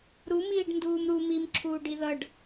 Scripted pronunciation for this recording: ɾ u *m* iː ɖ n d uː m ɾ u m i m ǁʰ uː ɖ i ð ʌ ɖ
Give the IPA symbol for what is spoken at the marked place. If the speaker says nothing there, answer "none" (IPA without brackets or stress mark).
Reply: m